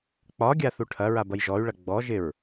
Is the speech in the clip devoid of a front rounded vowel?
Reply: no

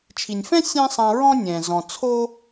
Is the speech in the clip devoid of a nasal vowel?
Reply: no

